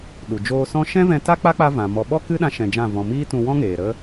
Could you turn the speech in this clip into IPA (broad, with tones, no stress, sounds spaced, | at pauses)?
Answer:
ɗ u˨ d͡ʒ oː˧ s ɔ̃˦ ʃ ɛ̃˦ v ɛ̃˧ t a˦ k͡p a˦ k͡p a˦ v ã˨ m ɔ˧ ɓ ɔ˦ k ɨ˦ ɗ ã˧ ʃ ɛ̃˧ d͡ʒ ã˦˨ v ɔ̃˧ m iː˦ t ũ˧ w ɔ̃˦ ŋ eː˨ ɾ ə˦